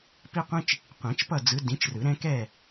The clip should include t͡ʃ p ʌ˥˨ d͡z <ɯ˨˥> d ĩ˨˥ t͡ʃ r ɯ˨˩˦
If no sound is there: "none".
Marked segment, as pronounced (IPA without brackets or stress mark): ɯ˨˥